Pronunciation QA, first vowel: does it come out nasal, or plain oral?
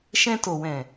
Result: nasal